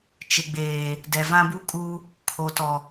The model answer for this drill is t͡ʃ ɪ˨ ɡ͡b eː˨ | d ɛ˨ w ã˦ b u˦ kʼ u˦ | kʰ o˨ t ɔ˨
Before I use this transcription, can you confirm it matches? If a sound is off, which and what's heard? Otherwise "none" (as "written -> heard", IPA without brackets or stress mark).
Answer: w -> v